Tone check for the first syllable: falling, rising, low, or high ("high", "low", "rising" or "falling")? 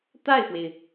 falling